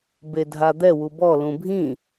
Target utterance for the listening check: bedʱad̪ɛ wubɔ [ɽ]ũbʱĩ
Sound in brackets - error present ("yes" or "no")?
yes